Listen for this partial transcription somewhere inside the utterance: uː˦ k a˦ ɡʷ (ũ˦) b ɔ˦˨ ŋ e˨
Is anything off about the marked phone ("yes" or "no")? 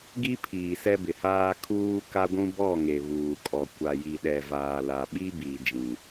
no